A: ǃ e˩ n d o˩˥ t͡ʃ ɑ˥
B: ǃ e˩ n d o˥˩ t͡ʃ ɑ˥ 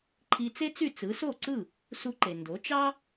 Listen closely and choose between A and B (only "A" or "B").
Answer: A